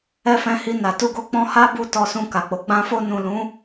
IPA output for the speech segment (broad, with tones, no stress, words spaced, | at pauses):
ɛ˧fɛ̃˧hi˧ na˨tu˧ɡo˧ k͡pɔ̃˧ha˦bu˧ tɔ˧sũ˧ka˨k͡po˨˦ ɡ͡bã˧ fo˧nũ˨ lũ˨˦